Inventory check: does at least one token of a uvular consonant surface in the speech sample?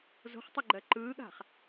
yes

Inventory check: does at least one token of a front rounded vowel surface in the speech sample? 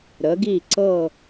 no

